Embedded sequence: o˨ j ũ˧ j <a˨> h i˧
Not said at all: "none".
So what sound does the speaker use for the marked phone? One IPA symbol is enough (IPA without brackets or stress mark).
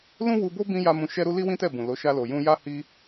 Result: a˦